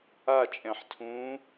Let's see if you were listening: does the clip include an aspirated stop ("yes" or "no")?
yes